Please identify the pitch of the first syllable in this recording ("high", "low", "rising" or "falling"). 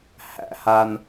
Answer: high